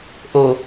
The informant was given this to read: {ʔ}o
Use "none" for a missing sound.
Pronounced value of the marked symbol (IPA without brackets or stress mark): ʔ